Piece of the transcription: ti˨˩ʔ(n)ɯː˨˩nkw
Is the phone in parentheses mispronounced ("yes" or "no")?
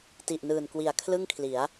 no